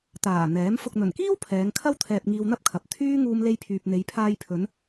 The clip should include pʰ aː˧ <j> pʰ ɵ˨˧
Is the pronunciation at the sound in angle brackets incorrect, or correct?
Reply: correct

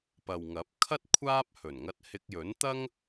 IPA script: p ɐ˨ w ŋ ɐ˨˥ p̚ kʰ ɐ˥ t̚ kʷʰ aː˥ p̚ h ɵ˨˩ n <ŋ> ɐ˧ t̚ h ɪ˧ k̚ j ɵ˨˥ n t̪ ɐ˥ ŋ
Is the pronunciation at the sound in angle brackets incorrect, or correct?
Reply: correct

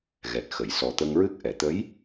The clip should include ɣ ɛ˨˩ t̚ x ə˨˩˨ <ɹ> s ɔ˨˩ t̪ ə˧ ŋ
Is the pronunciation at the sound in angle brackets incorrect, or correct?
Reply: incorrect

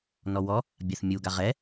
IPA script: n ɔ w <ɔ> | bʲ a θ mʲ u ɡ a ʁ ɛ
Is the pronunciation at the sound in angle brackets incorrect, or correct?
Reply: correct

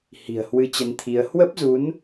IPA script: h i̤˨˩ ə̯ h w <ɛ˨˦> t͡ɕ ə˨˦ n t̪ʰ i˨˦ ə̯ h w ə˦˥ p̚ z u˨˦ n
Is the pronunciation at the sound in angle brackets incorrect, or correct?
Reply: incorrect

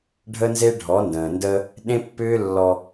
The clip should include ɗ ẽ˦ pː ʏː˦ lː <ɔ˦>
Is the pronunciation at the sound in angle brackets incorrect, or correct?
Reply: correct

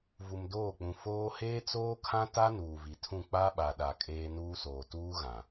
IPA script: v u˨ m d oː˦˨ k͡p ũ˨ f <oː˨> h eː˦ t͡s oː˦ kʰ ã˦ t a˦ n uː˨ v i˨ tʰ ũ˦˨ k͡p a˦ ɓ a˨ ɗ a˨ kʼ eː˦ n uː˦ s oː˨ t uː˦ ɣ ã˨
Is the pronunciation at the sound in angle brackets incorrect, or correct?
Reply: incorrect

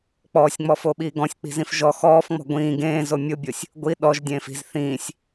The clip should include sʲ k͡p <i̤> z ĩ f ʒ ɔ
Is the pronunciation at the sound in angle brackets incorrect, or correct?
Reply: correct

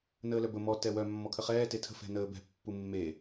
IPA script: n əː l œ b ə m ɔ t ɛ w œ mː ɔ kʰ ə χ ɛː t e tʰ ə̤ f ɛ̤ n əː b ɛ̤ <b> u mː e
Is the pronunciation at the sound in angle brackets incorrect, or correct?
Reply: incorrect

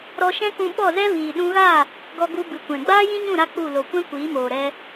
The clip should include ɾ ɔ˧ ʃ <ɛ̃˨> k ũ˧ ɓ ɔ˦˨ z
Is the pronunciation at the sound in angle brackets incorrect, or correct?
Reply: incorrect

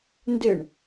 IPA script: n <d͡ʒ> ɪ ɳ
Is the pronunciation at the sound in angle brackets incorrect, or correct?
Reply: incorrect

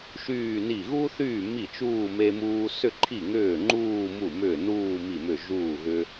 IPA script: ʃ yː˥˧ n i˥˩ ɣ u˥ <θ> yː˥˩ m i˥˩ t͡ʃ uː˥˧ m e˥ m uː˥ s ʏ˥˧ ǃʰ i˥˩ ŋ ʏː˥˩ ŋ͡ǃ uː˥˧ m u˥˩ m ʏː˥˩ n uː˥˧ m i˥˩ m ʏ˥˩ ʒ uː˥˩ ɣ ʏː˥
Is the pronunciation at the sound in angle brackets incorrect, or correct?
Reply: correct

